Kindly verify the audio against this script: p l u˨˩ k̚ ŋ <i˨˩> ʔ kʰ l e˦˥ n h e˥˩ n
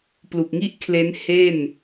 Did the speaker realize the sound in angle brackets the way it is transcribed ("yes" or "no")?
no